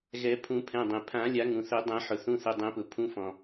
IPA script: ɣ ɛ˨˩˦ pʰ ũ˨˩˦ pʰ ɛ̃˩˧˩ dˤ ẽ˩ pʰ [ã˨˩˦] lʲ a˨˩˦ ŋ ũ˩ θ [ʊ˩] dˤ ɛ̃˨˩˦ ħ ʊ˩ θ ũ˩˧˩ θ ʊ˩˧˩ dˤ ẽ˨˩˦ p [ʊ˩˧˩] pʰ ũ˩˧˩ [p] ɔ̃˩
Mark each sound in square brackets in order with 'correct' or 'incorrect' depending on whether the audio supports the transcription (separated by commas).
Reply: correct, incorrect, incorrect, incorrect